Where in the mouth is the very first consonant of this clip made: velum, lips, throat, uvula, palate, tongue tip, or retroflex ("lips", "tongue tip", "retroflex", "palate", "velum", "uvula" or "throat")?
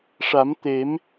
retroflex